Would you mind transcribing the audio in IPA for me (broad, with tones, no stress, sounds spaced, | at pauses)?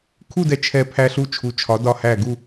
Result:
kʰ u˥˧ d ɛ˧ t͡ʃʰ ɛ˧˩ pʰ æ˧ ɬ u˧ t͡ʃʰ u˩˧ t͡ʃʰ ɒ˩˧ d ɒ˧˩ h æ˧˩ ɡ u˥˧